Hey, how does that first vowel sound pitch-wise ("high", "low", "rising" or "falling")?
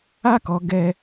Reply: high